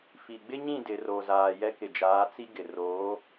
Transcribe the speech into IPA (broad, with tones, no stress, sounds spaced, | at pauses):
f i˨ ɡ͡b ɪ˦ ɲ ĩ˦˨ d ɪ˨ r o˨ z aː˨ j ɛ˦ k ɪ˨ d͡ʒ aː˨˦ t͡s i˦ ɡ ɪ˨ r oː˨˦